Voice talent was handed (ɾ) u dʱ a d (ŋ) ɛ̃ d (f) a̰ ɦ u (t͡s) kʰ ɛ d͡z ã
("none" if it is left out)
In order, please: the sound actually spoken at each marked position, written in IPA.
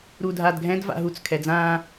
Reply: ɾ, ɡʱ, v, t͡s

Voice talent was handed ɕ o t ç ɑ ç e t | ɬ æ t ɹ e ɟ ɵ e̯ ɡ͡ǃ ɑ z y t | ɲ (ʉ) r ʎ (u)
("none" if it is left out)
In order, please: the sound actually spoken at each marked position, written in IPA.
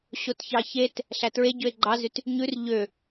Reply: ʉ, ø

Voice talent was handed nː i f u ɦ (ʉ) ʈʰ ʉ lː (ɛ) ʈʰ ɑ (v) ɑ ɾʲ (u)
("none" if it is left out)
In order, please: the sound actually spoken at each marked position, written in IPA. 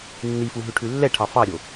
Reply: ʉ, ɛ, f, o

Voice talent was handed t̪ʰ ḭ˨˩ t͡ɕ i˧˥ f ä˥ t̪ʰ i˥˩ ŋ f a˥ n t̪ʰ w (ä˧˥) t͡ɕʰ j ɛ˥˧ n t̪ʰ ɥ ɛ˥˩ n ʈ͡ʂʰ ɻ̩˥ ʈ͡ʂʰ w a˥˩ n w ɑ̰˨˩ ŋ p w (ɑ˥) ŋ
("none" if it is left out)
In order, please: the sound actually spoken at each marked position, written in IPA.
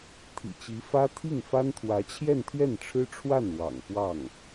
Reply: ä˧˥, ɑ˥˩

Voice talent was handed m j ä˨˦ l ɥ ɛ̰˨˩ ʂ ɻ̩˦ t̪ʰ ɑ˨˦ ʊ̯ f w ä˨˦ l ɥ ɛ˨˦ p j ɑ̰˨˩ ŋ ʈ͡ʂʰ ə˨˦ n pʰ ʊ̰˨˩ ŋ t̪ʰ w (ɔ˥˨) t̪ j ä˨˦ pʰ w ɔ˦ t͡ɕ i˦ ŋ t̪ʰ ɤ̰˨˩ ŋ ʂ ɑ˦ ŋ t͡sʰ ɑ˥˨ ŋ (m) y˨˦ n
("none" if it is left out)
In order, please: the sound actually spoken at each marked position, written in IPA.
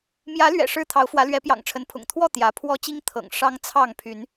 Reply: ɔ˥˨, pʰ

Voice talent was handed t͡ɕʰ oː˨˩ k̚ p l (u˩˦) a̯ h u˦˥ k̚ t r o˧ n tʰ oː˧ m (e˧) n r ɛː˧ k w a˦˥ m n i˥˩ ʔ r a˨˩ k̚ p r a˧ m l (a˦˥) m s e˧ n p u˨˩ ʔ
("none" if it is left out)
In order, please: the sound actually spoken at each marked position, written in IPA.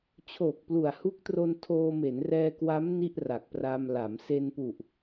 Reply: u˨˩, e˩˦, a˩˦

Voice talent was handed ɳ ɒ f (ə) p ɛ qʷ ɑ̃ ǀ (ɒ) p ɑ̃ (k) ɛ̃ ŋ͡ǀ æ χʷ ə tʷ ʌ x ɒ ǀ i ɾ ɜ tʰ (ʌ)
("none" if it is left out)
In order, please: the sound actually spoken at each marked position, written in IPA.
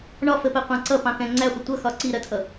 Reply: ə, ʌ, k, ʌ

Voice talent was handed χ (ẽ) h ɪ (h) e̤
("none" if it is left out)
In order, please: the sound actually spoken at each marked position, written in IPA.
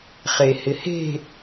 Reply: e, h

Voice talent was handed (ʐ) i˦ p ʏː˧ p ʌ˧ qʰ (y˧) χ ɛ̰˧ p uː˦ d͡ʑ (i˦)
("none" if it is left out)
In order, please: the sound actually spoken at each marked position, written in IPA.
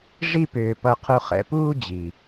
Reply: ʐ, u˧, i˨

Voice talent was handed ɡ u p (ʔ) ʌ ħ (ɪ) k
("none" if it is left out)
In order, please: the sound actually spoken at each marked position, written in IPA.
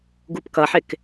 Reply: k, ɪ

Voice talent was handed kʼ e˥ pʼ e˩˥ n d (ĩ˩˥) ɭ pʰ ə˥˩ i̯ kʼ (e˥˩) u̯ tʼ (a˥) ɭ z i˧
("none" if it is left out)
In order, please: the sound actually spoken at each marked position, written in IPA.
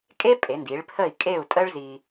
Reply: i˩˥, e˥˩, ə˥

